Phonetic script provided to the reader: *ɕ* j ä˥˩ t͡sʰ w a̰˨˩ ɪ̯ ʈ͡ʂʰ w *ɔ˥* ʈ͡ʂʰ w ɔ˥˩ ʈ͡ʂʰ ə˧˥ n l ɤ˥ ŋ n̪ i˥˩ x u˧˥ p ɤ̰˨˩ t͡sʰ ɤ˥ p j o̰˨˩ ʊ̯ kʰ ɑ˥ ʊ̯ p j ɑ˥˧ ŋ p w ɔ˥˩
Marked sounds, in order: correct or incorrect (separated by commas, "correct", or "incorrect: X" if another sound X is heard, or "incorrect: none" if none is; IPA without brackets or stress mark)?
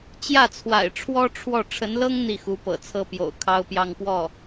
incorrect: t͡ɕ, correct